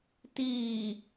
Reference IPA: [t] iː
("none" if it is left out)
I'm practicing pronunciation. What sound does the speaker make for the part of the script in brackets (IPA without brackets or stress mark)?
t